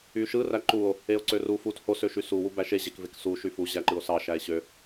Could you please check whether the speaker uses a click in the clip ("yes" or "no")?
yes